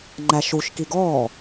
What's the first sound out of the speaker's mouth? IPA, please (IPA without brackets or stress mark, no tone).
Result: ŋ͡ǃ